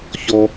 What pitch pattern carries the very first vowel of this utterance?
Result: high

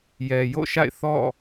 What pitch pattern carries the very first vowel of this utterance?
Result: low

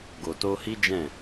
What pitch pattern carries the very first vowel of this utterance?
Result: low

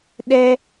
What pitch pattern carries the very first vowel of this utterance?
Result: high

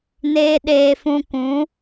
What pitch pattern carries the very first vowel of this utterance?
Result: high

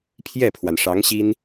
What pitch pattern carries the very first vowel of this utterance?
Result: falling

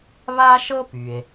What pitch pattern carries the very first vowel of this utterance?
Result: high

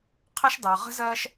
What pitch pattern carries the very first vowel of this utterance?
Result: high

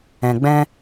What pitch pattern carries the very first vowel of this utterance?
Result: low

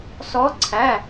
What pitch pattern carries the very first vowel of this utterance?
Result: rising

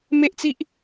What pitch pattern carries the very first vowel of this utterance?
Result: high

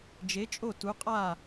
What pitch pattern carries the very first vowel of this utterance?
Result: rising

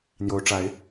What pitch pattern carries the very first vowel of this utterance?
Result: rising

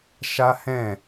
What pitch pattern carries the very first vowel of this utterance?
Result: high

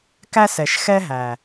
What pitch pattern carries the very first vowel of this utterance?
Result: high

